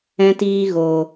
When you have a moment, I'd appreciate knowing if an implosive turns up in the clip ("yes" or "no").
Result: no